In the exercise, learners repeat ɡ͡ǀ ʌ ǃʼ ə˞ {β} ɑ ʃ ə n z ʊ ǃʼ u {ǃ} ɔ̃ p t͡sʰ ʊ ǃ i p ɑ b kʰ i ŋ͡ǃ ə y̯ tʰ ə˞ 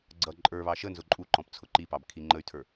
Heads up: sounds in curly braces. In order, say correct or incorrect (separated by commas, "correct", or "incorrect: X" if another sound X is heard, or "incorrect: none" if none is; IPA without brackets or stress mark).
correct, correct